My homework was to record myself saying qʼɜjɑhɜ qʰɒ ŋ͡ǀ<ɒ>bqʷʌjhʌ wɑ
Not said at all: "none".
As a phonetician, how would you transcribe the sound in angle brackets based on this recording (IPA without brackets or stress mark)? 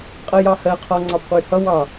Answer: ɑ